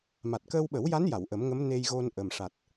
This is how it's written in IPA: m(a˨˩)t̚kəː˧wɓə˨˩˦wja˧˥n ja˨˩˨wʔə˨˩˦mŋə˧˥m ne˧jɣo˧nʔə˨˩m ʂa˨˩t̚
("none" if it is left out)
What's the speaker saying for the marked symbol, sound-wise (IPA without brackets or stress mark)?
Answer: a˨˩